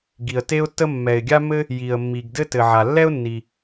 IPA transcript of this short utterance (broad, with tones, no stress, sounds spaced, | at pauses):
ɡ i˩ ə̯ t e˥ ʊ̯ tː ə˥ mː ɛ˩ ɪ̯ ɡʲ a˥ m ɘ˥ | j i˩ ə̯ mː i˩ ɡ d ɘ˥ t ɘ˩ ʕ a˩ lː ɛ˥ ʊ̯ nː i˩